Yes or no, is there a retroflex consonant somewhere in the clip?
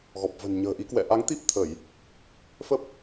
no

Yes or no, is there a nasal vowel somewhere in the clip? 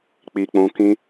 yes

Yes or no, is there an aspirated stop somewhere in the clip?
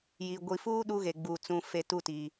no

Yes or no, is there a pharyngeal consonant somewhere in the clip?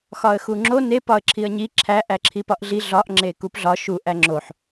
yes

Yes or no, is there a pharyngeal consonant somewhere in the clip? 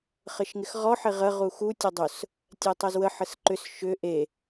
yes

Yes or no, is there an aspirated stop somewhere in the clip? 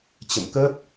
no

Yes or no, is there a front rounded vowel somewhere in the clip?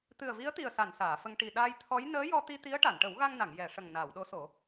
no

